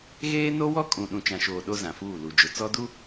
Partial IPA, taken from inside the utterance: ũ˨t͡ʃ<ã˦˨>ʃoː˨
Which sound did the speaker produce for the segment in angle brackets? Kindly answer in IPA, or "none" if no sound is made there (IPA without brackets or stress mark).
ã˨